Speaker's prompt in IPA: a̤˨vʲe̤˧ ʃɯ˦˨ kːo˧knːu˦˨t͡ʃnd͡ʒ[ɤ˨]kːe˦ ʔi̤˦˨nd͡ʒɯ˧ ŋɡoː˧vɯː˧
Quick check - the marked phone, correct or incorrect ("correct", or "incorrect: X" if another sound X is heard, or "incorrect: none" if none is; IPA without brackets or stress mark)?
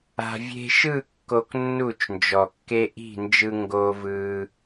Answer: incorrect: ɔ˨